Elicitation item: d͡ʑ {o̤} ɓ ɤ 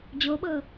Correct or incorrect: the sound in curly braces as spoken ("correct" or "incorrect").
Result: incorrect